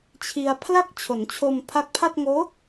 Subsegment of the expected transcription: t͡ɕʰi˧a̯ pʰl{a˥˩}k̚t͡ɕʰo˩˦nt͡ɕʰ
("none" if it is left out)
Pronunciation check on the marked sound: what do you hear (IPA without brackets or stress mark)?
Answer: a˥˩